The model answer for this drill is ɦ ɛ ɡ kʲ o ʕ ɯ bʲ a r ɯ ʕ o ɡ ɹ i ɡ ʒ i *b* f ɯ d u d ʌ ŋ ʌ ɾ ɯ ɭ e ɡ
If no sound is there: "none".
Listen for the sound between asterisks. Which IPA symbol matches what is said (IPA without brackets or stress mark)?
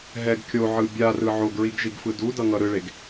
ɡ